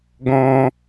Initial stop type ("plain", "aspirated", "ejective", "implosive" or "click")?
plain